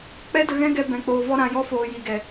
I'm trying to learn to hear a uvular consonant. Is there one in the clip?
no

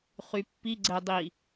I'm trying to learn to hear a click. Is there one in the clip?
yes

